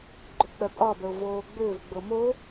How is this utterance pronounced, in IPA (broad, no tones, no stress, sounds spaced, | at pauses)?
ɡ͡ǃ ʏ k͡p œ pʼ ɒ b ə ʊ̯ v oː ɡ͡b ʏː v ɡ͡b ɤ m o